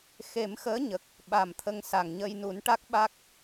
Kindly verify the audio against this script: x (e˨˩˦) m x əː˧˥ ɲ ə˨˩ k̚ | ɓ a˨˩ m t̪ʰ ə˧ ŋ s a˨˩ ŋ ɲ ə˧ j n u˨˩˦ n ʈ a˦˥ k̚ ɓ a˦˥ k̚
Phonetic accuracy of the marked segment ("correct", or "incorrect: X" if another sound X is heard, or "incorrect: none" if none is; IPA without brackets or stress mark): correct